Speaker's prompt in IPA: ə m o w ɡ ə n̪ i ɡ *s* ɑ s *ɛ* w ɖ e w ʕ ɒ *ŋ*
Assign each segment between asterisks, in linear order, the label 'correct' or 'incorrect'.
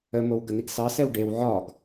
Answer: correct, correct, incorrect

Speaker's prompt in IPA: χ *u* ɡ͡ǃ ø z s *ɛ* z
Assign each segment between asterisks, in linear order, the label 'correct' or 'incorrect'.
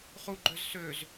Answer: correct, incorrect

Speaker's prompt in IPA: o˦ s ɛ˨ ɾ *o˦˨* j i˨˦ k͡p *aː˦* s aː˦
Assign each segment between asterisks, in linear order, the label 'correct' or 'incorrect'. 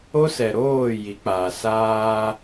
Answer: incorrect, incorrect

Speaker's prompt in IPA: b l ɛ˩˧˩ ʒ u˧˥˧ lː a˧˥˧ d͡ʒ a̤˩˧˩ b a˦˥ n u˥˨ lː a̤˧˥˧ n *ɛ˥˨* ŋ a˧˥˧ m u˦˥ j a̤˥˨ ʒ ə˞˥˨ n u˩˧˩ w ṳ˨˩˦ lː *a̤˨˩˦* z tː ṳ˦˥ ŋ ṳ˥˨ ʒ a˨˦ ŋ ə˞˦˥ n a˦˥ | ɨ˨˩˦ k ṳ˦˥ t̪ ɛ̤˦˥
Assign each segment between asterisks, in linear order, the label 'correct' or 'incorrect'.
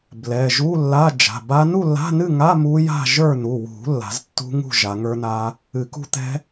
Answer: incorrect, correct

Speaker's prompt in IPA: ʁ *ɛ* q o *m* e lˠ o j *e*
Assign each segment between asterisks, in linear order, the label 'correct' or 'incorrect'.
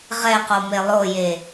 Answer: correct, correct, correct

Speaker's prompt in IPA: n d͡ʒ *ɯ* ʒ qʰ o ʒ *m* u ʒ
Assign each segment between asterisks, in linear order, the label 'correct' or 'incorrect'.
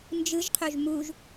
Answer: correct, correct

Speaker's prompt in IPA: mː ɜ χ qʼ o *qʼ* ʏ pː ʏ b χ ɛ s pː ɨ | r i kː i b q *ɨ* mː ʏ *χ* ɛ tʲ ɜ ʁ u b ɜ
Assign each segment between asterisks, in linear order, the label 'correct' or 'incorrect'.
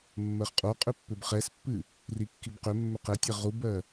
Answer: correct, incorrect, incorrect

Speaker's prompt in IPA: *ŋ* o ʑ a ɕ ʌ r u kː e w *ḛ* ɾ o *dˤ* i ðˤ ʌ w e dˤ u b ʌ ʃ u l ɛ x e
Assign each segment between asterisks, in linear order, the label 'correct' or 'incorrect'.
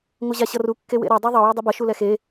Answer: correct, correct, correct

